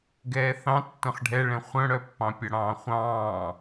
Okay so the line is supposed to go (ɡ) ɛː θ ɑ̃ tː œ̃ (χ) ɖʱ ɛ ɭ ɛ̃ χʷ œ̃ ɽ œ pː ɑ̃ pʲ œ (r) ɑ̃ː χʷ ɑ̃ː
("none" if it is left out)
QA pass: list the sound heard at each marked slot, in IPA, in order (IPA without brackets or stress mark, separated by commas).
ɡ, χ, ɽ